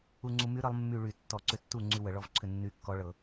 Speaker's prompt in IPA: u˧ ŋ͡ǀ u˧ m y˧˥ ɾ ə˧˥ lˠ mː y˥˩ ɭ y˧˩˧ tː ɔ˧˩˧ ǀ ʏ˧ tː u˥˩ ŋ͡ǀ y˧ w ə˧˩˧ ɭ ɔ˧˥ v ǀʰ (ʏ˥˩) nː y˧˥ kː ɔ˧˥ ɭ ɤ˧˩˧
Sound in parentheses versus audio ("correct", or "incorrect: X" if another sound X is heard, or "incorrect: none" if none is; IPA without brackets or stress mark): correct